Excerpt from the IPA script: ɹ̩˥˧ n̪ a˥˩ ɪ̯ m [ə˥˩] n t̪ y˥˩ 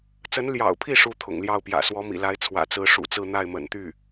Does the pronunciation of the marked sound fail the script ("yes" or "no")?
yes